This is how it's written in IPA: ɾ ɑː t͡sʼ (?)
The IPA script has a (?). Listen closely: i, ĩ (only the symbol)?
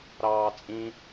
ĩ